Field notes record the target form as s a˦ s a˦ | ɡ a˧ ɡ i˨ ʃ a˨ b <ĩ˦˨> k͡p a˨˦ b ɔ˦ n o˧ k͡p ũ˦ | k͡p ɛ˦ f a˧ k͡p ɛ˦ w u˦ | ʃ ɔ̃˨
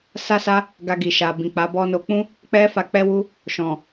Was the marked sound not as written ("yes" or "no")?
yes